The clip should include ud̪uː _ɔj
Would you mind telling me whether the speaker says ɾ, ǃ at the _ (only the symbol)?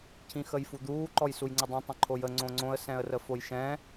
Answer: ǃ